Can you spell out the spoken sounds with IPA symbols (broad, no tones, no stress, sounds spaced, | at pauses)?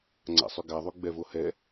ŋ͡ǀ a̰ sˤ y ɡ a ðˤ y ɡ͡b ɛ v o h ɛ